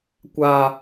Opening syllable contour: high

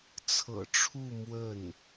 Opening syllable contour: low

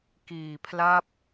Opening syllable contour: low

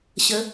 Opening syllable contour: rising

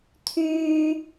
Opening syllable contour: low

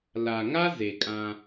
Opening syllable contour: low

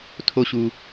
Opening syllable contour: low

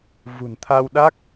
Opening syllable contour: low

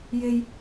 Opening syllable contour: high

